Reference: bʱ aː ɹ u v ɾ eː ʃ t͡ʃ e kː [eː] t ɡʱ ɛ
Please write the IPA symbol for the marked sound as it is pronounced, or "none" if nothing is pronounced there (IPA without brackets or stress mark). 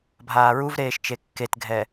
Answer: e